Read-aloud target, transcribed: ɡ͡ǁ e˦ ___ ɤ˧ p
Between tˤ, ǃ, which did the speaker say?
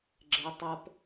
tˤ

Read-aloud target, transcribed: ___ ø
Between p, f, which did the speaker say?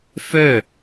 f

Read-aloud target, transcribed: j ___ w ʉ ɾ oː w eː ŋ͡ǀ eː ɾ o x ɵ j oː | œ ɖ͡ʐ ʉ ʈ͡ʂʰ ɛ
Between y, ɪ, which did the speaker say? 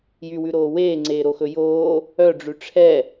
y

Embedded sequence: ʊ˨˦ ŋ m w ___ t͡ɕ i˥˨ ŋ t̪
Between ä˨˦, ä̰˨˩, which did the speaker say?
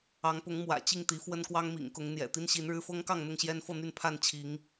ä̰˨˩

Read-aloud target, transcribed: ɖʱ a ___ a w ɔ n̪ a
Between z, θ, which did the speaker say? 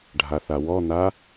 θ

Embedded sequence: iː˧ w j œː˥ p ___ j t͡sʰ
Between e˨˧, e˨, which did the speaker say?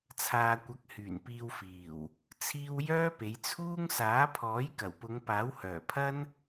e˨˧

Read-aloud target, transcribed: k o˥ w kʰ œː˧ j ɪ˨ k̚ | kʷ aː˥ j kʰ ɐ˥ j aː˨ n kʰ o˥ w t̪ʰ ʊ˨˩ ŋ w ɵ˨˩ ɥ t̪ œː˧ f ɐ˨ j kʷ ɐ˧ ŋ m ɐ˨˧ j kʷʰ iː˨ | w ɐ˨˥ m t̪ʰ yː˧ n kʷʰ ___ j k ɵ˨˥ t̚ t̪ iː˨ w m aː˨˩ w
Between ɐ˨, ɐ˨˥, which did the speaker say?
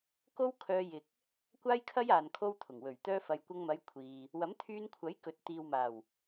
ɐ˨˥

